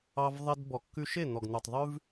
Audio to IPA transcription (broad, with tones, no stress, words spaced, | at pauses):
ɑ˧vðˤe˧d bɔ˨kːʉ˧ʃe˦˨ n̪ɔ˨ɡn̪ʉ˨tˤðˤʉ˦v